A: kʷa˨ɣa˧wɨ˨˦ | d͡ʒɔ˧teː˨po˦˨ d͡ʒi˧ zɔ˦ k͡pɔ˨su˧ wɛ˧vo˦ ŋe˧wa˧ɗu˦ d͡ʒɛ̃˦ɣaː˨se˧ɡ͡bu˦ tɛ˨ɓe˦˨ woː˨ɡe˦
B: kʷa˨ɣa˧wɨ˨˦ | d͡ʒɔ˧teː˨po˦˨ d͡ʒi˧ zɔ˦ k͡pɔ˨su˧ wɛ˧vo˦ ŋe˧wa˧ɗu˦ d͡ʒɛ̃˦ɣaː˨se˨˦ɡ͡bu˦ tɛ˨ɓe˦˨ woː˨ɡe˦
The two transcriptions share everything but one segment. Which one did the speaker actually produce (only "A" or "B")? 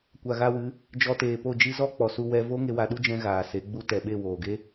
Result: B